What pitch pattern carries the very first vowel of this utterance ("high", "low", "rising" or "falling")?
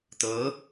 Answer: rising